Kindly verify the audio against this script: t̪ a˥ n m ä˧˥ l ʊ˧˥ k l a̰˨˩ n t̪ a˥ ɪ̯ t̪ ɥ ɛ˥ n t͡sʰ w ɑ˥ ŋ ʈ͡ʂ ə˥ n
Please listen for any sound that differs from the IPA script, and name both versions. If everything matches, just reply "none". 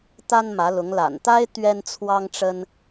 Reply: k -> ŋ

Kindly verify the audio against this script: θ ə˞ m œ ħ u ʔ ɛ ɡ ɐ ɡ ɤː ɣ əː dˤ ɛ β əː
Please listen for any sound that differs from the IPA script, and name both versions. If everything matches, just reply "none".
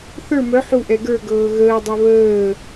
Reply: ɐ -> ə˞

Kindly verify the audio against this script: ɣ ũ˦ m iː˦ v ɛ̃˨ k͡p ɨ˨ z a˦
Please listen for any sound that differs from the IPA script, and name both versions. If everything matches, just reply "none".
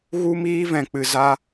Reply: ũ˦ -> u˦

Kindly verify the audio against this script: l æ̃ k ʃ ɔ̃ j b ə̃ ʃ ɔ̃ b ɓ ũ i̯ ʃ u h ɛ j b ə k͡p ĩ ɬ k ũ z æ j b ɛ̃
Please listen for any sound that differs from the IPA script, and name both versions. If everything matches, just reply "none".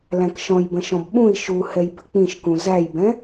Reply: ɬ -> ʃ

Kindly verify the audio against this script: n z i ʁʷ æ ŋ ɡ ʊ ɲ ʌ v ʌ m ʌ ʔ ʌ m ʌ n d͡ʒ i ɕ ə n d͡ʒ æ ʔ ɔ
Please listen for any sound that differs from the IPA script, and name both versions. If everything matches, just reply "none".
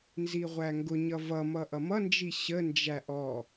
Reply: none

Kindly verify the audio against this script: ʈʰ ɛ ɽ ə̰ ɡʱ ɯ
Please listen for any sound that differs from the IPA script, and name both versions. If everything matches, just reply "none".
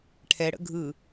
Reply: none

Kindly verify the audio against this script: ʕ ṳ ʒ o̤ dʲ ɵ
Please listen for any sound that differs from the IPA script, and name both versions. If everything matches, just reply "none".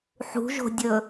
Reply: ʕ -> ħ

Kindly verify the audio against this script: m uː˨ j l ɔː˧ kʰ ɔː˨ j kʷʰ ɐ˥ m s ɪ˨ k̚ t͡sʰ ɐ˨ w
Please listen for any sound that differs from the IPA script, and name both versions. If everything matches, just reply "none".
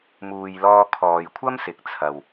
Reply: none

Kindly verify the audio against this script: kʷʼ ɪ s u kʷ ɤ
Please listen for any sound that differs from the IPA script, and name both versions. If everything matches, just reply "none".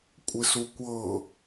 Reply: none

